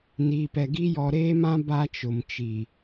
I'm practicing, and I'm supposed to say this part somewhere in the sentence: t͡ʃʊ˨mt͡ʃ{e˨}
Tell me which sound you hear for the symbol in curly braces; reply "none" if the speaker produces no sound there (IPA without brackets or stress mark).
i˨